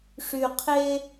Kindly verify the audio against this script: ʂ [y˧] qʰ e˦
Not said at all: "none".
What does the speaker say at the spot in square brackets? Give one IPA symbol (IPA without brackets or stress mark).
y˧